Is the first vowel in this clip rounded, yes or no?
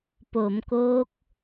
yes